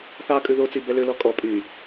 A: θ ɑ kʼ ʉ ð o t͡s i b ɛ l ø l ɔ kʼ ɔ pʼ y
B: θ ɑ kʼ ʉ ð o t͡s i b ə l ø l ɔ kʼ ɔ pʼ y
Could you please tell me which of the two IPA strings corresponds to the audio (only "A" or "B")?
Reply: A